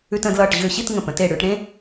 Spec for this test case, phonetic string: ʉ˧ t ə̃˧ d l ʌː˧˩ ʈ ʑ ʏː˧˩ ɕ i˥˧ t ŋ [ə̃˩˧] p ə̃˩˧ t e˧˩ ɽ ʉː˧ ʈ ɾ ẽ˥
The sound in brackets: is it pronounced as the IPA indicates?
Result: no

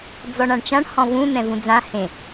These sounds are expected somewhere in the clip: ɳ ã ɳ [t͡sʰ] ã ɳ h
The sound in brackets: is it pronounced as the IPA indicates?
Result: no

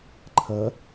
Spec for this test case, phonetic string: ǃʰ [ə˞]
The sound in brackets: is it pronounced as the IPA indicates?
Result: no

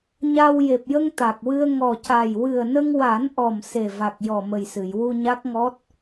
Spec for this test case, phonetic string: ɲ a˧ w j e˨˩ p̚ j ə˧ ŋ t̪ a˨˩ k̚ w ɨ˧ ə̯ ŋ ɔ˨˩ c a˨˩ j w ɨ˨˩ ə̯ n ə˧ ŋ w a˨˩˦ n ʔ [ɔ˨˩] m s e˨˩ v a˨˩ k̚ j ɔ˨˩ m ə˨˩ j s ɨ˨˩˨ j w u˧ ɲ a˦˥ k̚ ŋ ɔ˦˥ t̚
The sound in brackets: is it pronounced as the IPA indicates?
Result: yes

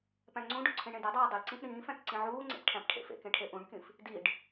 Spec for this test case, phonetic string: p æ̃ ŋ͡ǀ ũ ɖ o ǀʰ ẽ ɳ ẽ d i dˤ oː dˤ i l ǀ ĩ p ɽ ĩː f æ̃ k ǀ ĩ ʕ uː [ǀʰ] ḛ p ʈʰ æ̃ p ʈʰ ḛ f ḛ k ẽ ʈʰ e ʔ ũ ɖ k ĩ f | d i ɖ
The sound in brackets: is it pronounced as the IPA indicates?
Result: no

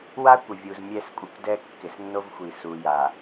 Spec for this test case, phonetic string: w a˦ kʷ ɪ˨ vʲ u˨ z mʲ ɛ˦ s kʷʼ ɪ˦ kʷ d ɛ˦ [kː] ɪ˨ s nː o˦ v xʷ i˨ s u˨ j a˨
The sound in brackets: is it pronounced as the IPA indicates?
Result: yes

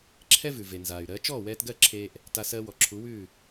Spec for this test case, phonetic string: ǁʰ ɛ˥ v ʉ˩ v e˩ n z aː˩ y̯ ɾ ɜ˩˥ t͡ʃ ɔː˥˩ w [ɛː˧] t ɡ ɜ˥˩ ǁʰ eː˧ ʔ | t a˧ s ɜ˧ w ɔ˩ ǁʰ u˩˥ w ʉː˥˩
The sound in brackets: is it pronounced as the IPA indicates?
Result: yes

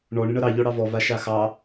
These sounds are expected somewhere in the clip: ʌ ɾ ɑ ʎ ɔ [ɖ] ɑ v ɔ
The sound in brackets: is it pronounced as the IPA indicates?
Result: no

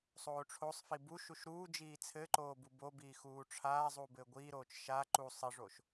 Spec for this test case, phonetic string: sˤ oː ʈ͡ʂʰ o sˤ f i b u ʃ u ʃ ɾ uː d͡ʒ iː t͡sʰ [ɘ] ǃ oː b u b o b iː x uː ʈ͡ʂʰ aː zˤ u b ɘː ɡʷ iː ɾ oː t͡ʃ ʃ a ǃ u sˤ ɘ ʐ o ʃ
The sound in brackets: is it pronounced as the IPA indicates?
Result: yes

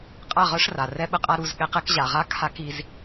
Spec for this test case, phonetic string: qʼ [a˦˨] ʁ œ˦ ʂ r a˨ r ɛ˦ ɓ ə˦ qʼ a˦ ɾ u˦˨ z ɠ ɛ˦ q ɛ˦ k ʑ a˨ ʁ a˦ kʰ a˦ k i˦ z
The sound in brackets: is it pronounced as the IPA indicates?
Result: yes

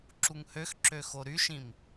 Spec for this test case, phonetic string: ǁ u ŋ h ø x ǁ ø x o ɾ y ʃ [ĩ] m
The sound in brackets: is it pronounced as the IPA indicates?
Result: yes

